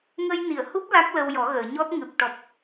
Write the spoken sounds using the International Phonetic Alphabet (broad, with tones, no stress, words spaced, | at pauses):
ŋə˧jni˨˩˨ə̯hu˦˥p̚ la˦˥k̚lə˧w jɔ˨˩˦ɣəː˨˩˨ɲɔ˦˥t̚ ŋɨ˨˩p̚ʈɔ˨˩p̚